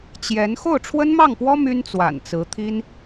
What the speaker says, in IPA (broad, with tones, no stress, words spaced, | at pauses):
t͡ɕjɛ˧˥n xo˥˩ʊ̯ʈ͡ʂʰwə˥nmɑ˥˩ŋpwɔ˥ my˥nt͡swa̰˨˩nt͡sɹ̩˧˥t̪ʰi˥n